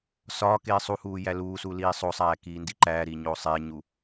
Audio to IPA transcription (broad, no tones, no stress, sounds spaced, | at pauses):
s ɒː k eː sˤ u h uː j æ l uː s u l iː sˤ o sˤ æː k iː n d i ǃ æː ɾ iː ɲ oː sˤ eː ɲ u